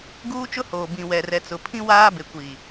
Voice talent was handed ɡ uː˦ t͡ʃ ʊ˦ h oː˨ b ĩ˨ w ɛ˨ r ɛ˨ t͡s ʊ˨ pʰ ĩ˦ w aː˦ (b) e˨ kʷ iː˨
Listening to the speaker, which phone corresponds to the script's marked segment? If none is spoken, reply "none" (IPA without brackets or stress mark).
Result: b